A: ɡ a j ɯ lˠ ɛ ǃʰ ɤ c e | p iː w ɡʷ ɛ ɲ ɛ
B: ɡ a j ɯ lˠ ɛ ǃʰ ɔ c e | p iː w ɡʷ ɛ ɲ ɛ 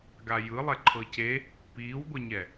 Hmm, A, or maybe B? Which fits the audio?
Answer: A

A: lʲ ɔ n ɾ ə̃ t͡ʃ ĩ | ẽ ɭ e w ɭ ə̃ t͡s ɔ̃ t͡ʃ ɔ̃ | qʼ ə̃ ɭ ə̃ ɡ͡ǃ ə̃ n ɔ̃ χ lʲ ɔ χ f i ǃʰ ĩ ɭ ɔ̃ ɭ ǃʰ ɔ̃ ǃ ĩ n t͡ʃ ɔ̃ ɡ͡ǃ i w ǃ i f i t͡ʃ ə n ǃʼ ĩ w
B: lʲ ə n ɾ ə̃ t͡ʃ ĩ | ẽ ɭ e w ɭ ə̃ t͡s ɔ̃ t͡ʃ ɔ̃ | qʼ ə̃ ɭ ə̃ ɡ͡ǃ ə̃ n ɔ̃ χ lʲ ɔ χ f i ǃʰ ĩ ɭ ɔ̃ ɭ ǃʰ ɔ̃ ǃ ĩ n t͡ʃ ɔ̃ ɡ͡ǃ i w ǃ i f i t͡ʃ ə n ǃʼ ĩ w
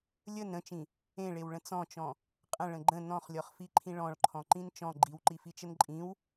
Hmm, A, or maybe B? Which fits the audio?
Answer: B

